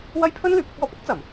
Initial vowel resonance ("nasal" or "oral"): oral